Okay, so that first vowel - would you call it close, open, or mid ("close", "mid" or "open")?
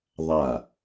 open